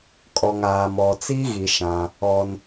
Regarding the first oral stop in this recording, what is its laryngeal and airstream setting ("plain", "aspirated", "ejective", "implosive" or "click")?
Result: ejective